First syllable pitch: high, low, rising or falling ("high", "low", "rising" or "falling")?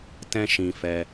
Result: high